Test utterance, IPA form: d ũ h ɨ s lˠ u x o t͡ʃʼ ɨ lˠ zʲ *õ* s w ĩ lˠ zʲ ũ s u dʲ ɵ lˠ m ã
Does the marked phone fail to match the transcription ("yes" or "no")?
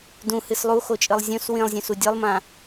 no